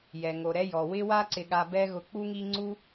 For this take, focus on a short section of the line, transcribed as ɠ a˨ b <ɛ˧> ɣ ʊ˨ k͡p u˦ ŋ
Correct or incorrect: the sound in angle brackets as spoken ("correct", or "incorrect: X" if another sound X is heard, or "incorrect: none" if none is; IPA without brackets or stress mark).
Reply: correct